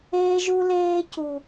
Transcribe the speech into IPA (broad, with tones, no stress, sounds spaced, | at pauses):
eː˦ ʒ u˦ l eː˦ c u˨